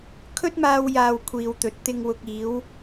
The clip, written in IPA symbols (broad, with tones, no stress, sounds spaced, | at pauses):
kʰ ɵ˥ t̚ m aː˧ w j aː˨ w kʷʰ iː˨ w t̪ ɵ˨ t̚ t̪ ɪ˨ ŋ w ʊ˨ k̚ iː˨˧ w